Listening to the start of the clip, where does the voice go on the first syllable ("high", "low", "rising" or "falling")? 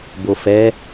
low